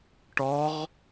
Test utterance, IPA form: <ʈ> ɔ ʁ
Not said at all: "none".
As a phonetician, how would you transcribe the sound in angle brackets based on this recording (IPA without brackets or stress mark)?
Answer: ʈ